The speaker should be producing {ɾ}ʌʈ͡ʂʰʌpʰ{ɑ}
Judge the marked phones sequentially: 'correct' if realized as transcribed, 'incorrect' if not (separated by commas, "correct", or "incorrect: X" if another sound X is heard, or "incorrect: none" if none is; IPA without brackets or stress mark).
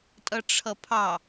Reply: incorrect: tʼ, correct